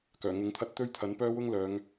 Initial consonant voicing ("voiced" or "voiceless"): voiceless